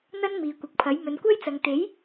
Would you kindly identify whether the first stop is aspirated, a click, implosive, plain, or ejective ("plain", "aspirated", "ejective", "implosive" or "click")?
plain